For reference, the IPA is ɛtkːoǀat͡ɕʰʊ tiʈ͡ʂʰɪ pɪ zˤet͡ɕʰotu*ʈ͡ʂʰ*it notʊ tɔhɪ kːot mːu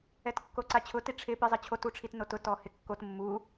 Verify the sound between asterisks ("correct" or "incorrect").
correct